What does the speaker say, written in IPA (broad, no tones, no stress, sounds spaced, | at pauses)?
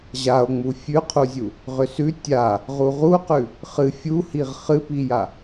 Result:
ʑ a o̯ ŋ͡m u fʲ ʉ qʰ u zʲ u | ʁ ʏ s ʉ tʲ a | ʁ u ʁ u q ʉ | χ ɨ fʲ u h i ʁ χ ɨ p i j a